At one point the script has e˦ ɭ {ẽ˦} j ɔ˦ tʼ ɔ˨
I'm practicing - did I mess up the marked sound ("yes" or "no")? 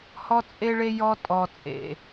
yes